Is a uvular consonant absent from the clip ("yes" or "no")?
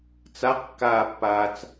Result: no